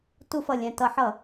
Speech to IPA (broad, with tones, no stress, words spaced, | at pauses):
tu˧˩˧fʌ˨˩ lʲɛ̃˨˩tʌ˧˩˧ħʌ˧˩˧